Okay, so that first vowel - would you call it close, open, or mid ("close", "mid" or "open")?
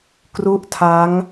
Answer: close